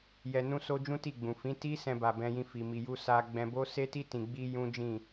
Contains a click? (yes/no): no